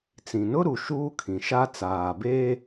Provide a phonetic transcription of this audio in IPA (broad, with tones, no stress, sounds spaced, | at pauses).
t͡s ĩ˨ n ʊ˦ ɾ u˨ ʃ uː˦ kʰ ĩ˨ ʃ a˦ t͡s aː˨ b eː˦